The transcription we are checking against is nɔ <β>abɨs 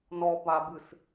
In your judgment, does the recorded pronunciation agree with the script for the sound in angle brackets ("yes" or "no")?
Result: no